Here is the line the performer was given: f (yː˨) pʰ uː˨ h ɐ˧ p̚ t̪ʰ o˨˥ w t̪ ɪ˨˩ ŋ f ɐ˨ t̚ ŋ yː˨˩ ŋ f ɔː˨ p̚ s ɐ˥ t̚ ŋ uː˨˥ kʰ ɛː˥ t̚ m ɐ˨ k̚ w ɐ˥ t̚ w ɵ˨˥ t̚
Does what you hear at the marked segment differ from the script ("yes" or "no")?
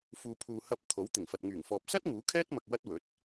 yes